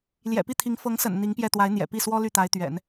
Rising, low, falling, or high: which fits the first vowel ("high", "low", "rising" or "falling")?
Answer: low